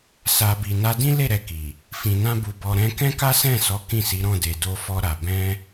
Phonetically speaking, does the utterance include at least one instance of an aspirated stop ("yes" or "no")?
no